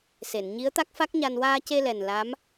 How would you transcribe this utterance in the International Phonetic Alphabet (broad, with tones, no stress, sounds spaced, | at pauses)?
s e˨˩˨ n ɲ i˧˥ ə̯ t̪ a˦˥ k̚ f a˦˥ k̚ ɲ a˧ n w aː˧ c e˧ l ɛ˨˩ n l a˧˥ m